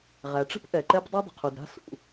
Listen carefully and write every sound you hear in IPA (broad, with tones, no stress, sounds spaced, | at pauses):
ʁ æ˩ ʈ͡ʂ ə̤˥ p ʔ ɛ˩ ǃ ɛ˥ p dˤ i˥ dˤ ə̤˩ qʰ u˩ d ɾ a̤˥ s ṵ˩